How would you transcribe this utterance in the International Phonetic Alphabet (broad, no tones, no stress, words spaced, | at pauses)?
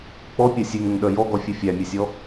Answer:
k͡pɔpʲœ sʲeŋœŋɗœ jɔɡɔfʲʉ fʲæmʲesʲɔ